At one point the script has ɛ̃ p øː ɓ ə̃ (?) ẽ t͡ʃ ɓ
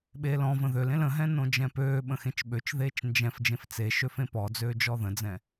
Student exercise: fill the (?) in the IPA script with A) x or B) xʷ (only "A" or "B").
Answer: A